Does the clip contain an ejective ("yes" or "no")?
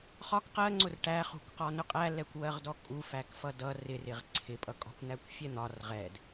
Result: yes